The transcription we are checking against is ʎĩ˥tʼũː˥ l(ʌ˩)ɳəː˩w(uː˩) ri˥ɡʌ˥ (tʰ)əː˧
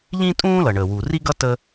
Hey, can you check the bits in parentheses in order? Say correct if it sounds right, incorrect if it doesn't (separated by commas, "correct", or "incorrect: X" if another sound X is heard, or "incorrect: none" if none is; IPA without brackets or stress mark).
correct, correct, incorrect: t